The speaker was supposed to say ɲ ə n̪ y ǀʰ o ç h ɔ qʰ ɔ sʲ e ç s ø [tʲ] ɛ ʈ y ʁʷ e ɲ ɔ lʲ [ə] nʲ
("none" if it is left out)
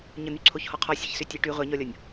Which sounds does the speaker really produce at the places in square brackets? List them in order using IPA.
tʲ, ɔ

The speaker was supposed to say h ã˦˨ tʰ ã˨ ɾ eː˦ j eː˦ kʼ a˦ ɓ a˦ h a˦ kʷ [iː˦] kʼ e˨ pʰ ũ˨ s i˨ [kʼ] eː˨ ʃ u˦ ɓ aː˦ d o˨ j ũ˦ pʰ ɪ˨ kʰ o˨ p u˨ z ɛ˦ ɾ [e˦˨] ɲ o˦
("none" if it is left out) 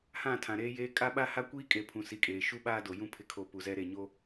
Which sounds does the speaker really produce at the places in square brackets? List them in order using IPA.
iː˦, kʼ, e˦˨

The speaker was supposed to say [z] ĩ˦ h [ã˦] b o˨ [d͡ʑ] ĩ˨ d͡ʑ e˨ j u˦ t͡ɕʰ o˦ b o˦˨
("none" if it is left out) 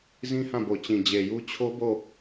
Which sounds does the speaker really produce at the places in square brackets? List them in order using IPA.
z, ã˦˨, t͡ɕ

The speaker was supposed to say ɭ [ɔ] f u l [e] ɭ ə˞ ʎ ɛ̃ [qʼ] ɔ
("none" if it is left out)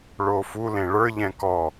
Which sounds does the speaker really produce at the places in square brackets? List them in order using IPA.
o, ẽ, k

